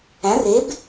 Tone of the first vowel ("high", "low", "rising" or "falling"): rising